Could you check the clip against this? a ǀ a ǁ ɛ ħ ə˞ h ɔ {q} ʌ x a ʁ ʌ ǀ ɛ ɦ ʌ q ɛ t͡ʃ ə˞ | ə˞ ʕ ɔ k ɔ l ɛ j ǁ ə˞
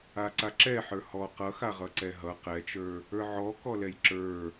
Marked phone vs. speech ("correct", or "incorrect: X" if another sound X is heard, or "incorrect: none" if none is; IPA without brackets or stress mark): correct